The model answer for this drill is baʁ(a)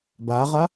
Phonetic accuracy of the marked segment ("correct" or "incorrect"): correct